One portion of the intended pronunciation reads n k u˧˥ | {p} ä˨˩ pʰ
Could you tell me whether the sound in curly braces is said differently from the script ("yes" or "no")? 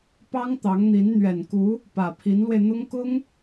no